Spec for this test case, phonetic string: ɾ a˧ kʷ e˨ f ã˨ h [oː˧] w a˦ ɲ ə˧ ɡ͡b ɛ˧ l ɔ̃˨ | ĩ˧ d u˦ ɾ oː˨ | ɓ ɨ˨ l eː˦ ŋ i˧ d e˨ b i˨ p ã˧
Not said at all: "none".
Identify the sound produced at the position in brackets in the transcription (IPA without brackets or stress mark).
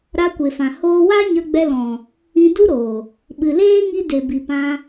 oː˦